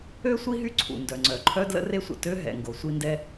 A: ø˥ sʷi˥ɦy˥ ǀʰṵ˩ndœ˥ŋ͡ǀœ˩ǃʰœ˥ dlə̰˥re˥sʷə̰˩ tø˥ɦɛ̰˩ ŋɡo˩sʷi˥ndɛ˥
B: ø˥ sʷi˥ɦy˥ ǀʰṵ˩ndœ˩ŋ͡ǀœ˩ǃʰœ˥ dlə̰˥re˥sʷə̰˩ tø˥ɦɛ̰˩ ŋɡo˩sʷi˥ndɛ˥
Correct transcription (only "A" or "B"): B